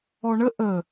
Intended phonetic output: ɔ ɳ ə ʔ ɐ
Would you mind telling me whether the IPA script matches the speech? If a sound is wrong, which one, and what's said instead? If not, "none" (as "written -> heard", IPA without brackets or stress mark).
ɐ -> ə